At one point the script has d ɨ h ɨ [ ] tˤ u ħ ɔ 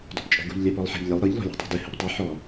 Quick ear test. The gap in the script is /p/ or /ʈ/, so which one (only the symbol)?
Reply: p